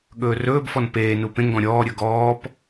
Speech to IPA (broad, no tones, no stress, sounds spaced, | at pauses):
ɠ ɵː r ɵː b f ɔ n p eː n u p ẽ ŋ ɡ ɔ̃ ɾʲ ɔː ɾʲ ɵ ɡ ɔː p